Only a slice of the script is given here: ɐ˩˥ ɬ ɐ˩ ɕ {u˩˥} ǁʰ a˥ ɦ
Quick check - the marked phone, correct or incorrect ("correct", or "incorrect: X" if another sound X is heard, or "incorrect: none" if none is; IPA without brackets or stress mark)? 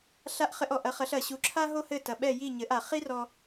correct